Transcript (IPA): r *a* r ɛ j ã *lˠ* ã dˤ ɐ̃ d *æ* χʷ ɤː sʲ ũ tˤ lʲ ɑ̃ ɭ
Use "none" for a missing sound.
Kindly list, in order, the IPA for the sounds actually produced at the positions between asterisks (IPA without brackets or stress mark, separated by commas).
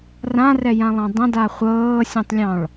ã, lˠ, a